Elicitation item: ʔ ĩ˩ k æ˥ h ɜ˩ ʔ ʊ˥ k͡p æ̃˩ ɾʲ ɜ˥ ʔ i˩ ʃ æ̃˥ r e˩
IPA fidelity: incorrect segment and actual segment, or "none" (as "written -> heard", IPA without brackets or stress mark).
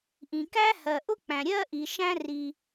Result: e˩ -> i˩